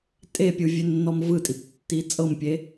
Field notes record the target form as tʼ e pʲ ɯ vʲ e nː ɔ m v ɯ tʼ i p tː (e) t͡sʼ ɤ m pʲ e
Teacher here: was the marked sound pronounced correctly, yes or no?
no